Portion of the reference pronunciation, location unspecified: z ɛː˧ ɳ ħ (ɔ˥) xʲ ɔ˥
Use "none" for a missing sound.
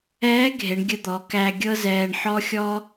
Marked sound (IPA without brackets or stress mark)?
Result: ɔ˥